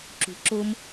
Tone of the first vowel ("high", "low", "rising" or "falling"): low